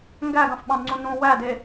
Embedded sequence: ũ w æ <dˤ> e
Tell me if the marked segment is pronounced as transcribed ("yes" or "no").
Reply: no